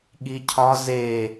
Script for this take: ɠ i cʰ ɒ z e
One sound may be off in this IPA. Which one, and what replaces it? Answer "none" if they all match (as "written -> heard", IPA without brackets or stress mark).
none